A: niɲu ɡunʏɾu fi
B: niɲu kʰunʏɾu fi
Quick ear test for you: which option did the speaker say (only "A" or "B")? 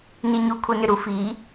B